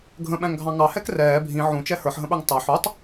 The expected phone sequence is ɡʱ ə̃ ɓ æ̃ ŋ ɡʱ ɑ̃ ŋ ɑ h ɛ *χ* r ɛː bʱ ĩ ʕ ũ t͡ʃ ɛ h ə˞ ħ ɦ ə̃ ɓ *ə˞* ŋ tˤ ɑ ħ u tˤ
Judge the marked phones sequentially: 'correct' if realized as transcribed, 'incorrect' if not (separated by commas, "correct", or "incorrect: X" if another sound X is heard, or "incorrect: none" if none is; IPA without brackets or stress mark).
incorrect: k, correct